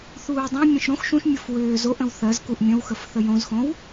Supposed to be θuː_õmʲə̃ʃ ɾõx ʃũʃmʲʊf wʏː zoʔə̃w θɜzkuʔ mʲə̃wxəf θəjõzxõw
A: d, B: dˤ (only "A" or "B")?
B